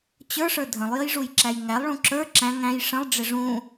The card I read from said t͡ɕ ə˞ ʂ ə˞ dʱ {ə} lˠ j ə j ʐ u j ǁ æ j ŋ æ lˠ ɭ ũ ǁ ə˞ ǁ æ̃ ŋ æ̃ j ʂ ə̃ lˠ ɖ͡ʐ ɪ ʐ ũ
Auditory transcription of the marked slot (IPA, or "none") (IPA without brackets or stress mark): ə̃